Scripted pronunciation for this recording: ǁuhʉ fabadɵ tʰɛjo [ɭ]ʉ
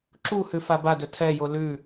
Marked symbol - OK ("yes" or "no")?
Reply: no